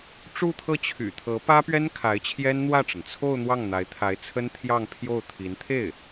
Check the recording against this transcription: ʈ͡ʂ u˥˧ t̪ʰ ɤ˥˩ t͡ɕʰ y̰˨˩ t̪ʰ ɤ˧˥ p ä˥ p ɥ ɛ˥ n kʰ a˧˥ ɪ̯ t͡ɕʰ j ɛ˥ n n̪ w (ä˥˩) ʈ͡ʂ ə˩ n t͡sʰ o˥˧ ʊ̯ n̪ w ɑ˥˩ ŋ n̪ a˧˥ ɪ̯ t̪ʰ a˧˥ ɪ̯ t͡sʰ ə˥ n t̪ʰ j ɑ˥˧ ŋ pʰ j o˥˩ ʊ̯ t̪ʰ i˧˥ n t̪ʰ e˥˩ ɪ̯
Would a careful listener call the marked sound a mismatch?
no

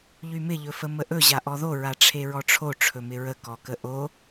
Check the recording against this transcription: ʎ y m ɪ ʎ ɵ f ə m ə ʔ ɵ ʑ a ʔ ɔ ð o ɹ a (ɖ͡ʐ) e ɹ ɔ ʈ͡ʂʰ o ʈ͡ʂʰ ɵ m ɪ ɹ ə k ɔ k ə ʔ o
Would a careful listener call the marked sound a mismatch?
yes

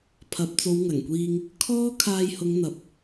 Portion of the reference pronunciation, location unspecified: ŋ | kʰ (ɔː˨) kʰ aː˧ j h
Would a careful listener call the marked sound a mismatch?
yes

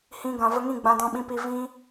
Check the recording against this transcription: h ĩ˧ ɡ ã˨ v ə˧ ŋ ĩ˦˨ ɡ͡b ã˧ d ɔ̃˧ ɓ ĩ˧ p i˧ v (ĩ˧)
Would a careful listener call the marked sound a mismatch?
no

